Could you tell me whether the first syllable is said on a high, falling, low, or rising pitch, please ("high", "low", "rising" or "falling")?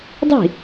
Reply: falling